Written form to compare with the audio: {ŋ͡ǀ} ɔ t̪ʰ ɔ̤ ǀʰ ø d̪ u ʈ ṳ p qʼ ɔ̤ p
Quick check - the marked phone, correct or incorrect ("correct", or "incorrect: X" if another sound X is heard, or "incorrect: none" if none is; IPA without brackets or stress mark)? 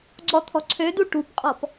incorrect: ɡ͡ǀ